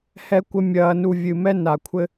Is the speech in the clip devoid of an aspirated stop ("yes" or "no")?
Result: no